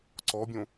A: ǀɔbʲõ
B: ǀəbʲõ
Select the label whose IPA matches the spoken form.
A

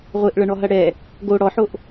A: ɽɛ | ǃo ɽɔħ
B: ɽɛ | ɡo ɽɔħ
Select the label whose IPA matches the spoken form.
B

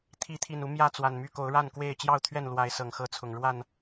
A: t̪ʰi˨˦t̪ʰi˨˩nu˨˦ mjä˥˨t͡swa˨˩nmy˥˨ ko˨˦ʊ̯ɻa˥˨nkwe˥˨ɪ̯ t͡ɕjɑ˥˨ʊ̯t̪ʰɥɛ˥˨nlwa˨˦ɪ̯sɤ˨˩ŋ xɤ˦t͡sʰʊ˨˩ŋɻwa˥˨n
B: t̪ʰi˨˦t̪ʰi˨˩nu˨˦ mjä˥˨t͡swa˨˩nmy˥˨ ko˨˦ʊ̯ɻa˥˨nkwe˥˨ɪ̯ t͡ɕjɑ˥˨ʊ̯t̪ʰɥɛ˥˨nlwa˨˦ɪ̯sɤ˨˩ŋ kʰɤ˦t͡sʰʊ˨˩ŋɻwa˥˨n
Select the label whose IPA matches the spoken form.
A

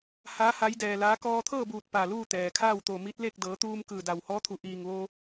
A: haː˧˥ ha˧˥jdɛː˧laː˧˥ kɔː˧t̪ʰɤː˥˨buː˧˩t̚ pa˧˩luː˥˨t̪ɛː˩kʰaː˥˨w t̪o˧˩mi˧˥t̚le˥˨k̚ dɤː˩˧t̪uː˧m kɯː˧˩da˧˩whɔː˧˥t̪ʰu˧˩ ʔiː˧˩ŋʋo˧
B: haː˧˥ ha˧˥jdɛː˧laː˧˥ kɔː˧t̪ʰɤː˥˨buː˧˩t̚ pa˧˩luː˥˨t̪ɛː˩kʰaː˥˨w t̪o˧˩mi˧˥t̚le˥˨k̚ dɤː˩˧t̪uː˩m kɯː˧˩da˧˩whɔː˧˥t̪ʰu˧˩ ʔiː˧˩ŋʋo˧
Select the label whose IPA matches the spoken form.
A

